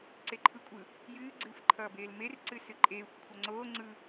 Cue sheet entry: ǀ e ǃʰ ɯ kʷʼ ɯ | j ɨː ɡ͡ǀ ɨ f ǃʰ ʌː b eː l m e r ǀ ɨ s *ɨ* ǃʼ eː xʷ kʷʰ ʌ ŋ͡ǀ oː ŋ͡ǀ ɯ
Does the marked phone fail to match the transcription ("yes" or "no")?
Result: no